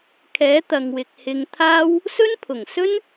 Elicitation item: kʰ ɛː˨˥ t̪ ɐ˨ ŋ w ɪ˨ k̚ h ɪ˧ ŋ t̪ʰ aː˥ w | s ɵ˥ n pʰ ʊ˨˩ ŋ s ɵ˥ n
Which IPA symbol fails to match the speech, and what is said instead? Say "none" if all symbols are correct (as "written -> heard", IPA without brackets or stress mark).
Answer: none